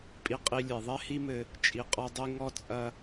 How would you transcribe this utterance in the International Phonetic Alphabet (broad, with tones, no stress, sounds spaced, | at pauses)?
pʼ i˧ qʼ i˧ lʲ ɛ˨ ðˤ ɛ˦ h i˦ m ɘ˧ | t͡ʃʼ i˨ qʼ ɔ˧ dˤ i˧ ŋ ɔ˦ t͡sʼ ɐ˦